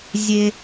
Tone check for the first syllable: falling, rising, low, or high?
high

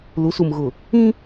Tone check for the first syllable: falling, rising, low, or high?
rising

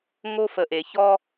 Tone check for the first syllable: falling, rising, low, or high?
high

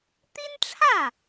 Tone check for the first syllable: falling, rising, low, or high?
high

